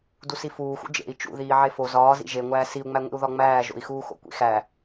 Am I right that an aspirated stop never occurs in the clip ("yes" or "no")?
yes